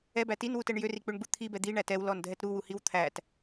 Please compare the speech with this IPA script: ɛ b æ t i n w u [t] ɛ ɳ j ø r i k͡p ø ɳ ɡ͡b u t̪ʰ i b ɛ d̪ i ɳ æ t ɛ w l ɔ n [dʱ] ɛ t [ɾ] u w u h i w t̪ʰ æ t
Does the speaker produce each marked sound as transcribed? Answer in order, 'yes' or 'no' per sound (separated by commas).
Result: yes, yes, yes